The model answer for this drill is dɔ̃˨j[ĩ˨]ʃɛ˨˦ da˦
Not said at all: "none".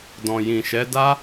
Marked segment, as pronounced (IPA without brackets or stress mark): ĩ˨